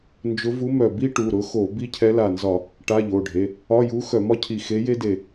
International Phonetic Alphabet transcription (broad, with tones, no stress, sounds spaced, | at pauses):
n d͡ʒ ʊ˧˥ v u˧˥ m œ˧˩ b i˥ ʈ u˩˧˩ ɾ ʊ˧˥ x o˧˩˧ b i˥ cʰ ɛ˧˥ l a˧˩ n z ɒ˧˩˧ | ʈ a˧˥˧ ʎ o˩˧˩ ɖʱ e˩˧˩ | ɒ˧˥˧ j u˧˥ x œ˧˩˧ m ɒ˥ cʰ i˧˩ x e˧˥ j e˥ d e˧˩